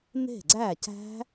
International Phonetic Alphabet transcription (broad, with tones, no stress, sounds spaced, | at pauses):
n e̤˥˩ ɡ͡ǀ æ˥˩ c æ̤˦˥